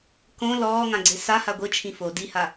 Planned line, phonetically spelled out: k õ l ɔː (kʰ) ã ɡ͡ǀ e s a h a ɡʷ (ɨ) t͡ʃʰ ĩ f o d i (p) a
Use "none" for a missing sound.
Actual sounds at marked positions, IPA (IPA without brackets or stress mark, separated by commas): ŋ, ɨ, h